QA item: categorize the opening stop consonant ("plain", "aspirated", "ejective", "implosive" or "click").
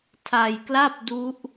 aspirated